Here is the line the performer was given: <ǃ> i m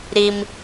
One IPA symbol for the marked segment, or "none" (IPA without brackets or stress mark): ɾ